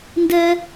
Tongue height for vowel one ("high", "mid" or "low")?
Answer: mid